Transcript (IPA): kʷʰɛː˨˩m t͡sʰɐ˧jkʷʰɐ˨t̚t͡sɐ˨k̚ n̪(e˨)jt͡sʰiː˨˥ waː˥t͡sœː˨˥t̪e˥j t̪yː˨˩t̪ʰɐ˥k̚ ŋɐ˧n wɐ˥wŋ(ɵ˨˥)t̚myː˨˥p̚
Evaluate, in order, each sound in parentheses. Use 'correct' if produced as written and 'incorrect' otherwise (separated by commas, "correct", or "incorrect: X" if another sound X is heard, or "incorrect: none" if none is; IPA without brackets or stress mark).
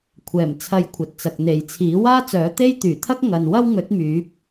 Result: correct, correct